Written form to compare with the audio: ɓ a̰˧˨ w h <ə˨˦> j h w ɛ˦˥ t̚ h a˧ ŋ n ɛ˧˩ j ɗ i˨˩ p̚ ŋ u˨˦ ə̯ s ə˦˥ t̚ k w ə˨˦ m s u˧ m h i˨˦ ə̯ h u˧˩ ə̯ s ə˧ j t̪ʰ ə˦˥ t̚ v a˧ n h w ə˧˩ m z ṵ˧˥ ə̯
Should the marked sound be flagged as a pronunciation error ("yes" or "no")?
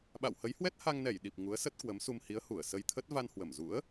no